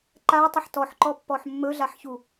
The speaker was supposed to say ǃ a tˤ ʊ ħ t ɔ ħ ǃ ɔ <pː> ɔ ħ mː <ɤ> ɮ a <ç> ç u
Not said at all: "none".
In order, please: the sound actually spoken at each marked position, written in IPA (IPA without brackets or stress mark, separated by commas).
pː, ɵ, ħ